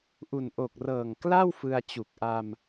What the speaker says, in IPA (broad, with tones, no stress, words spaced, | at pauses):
ʔu˨˩n ʔo˨˩k̚rɤː˨˩ŋkla˥˩w fɯ˧a̯t͡ɕu˨˩k̚ ʔa˧m